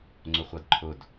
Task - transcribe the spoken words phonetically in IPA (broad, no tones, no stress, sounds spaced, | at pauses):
ŋ͡ǀ ʊ χʷ ʌ d ǃʰ ʊ d